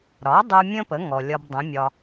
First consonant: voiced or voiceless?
voiced